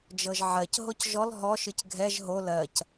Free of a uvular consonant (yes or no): yes